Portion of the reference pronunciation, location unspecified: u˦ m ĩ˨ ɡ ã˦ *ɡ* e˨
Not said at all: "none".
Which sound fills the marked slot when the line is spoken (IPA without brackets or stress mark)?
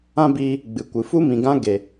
ɡ